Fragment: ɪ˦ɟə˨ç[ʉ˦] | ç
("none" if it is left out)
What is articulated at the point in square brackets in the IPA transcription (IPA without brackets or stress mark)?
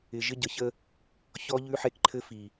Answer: ə˦